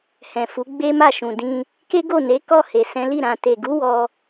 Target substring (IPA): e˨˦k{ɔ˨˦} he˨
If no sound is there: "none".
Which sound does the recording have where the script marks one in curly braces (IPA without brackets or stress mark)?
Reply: ɔ˦˨